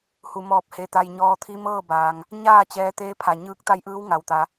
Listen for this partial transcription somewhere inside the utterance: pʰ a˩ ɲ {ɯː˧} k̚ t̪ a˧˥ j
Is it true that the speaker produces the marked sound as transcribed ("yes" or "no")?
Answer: no